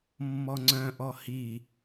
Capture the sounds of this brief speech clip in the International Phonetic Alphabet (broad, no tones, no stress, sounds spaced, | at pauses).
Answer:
mː ɔ ŋ͡ǀ œ̃ ʔ ɔ h i